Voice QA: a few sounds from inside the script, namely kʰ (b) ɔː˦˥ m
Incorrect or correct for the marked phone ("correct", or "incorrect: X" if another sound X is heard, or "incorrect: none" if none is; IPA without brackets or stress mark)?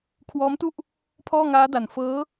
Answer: incorrect: w